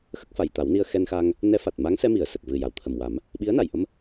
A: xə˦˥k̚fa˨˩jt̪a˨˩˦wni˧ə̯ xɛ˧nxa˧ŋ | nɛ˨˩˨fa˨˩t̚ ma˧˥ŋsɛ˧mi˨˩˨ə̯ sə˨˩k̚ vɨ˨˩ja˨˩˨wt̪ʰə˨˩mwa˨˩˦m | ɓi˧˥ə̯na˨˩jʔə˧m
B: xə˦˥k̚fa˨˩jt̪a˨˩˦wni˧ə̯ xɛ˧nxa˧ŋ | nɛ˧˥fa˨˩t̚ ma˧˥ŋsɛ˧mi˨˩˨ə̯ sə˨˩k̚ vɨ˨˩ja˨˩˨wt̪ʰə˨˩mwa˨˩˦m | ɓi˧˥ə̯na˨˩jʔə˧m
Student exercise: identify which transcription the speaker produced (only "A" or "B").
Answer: B